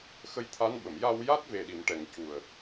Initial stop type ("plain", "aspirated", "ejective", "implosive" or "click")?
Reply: aspirated